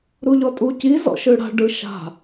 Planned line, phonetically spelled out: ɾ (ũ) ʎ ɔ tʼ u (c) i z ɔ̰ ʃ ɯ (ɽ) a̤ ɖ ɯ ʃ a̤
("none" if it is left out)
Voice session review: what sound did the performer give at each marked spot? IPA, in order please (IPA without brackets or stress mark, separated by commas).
u, c, ɽ